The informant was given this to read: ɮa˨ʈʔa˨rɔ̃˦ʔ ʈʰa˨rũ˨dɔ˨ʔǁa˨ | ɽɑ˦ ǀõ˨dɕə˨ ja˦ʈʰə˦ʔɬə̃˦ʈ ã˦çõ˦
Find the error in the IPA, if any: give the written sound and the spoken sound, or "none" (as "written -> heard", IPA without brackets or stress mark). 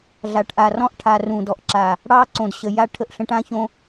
none